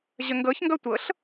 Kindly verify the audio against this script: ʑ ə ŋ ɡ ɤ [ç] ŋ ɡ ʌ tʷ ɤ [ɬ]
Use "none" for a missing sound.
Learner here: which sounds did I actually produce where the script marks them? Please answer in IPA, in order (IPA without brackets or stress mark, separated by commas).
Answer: ç, ɬ